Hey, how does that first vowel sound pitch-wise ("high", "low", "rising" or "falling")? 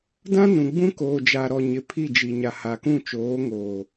high